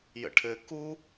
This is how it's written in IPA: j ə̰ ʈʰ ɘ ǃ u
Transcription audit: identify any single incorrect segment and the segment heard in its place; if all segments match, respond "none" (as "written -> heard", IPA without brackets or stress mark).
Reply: ǃ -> k